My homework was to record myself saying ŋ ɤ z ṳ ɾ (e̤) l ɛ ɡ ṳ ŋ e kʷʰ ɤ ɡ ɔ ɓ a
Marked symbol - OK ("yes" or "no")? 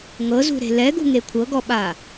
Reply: yes